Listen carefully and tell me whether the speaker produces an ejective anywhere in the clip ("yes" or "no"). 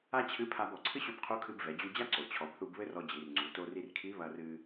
no